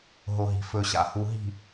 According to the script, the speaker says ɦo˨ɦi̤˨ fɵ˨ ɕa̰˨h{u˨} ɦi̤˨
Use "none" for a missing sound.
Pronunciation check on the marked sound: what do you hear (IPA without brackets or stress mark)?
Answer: u˨